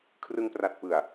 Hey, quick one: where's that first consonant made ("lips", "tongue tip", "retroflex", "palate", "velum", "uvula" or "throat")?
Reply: velum